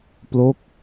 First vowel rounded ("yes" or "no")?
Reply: yes